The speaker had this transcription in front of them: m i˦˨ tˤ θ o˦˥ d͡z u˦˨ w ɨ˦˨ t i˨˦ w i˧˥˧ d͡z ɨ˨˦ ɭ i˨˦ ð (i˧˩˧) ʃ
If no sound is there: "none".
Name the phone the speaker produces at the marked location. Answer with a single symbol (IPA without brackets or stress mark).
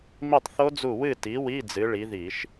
i˧˩˧